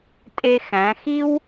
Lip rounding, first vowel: unrounded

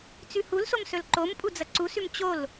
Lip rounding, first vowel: rounded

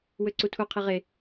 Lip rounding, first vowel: rounded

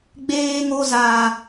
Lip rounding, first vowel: unrounded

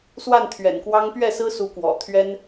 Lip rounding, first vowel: unrounded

